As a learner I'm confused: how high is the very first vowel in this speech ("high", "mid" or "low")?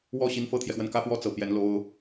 mid